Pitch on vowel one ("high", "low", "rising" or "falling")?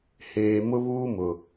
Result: low